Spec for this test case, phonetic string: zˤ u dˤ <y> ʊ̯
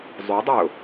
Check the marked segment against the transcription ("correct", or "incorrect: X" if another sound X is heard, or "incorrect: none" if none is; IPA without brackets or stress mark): correct